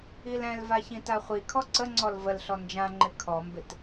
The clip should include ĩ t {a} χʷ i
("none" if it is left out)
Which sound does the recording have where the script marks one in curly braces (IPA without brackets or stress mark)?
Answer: a